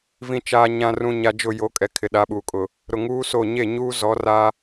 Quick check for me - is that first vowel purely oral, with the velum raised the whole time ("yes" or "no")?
no